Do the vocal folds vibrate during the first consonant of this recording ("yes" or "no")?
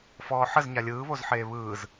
no